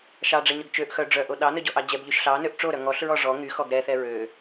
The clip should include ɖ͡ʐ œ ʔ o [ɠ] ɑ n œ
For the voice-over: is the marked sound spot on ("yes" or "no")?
no